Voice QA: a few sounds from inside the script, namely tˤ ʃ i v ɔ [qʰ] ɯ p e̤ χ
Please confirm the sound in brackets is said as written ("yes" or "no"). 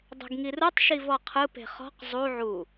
yes